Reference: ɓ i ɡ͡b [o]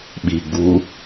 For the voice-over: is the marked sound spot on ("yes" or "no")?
no